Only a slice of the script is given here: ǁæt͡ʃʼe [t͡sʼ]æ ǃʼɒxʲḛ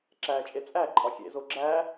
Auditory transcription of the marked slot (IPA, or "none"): t͡sʼ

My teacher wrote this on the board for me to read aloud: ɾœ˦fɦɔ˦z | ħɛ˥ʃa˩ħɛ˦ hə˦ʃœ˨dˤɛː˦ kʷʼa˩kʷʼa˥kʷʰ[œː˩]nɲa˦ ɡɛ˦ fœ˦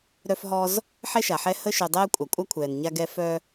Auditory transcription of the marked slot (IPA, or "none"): ɛː˩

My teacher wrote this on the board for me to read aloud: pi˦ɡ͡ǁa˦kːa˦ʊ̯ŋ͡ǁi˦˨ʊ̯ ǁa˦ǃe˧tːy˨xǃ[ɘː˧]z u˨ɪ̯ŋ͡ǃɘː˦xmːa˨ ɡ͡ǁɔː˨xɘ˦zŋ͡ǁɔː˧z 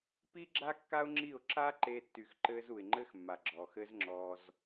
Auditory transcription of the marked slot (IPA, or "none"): ɘː˧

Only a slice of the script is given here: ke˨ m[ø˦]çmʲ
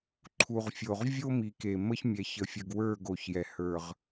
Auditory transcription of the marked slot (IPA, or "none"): ə˦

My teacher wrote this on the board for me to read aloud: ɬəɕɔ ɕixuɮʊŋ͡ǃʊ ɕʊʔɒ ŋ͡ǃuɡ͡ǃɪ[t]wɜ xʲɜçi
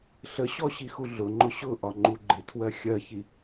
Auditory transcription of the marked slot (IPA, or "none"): tʰ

